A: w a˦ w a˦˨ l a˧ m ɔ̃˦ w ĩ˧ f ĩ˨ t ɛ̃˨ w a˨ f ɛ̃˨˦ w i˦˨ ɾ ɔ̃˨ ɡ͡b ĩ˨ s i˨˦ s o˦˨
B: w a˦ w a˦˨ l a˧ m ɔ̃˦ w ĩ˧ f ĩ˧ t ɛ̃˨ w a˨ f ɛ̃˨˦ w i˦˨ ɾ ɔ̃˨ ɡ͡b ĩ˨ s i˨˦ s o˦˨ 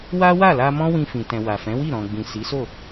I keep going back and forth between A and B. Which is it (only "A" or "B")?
A